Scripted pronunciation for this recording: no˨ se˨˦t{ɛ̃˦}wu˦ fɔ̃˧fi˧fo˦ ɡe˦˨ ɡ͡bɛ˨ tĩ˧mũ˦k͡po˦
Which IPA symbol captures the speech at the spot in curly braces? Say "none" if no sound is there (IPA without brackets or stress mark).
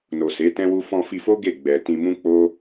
ɛ̃˦